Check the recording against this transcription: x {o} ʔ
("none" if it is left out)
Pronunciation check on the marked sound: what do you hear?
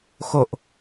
o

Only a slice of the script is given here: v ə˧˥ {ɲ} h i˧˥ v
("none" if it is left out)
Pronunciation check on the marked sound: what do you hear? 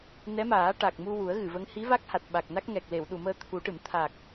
ŋ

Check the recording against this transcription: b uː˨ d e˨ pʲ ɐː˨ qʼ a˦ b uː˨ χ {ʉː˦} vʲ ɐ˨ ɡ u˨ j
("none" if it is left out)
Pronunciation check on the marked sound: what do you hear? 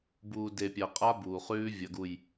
ʉː˦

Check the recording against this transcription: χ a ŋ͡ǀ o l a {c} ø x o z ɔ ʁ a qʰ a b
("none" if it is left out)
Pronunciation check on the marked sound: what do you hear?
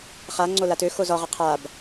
t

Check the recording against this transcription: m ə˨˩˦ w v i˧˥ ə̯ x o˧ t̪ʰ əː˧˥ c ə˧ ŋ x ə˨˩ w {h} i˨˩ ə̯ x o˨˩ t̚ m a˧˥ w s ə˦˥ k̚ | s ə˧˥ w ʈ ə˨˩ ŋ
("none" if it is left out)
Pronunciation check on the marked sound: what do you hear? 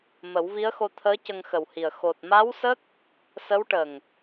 h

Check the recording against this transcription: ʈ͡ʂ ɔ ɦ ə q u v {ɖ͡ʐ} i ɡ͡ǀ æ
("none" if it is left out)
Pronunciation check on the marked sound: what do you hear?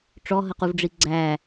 ɖ͡ʐ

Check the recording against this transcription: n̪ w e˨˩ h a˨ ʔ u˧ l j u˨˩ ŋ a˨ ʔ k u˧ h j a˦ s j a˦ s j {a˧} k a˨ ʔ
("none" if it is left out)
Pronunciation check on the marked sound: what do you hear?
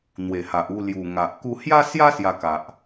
a˧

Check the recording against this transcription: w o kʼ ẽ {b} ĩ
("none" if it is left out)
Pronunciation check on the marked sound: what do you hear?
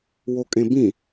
b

